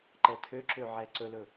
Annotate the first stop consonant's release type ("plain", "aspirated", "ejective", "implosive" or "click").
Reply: click